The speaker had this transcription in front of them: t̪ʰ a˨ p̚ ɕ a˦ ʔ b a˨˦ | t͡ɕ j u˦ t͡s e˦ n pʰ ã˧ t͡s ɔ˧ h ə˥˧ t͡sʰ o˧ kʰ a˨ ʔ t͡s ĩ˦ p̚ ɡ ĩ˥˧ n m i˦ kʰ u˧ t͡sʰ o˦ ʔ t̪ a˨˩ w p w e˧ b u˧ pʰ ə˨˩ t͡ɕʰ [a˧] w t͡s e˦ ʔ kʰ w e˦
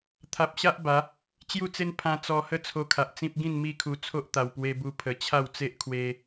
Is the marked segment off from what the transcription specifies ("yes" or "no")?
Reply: yes